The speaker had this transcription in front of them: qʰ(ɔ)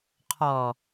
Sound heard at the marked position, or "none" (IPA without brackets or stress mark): ɔ